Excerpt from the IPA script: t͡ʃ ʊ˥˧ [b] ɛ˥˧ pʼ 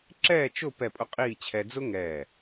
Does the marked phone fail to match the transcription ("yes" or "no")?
yes